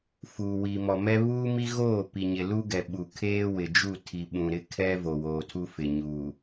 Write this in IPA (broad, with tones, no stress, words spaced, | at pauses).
fuː˨ wiː˨mɔ˨mɛ˦ βuː˦mi˦ ɣoː˦˨pi˨ɲɪ˨ lu˦ɡɛ˨ ɓu˨ kʰeː˦wɪ˨d͡ʒu˦˨ tʰi˨ɓũ˨ ɾɪ˦kʰɛ˦vo˨woː˨ tʰu˦fɪ˨ɲuː˨